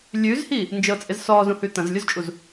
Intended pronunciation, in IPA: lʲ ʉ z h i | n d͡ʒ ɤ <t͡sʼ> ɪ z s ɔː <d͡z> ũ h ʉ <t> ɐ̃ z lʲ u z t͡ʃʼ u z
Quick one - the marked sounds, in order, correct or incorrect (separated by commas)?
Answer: correct, incorrect, correct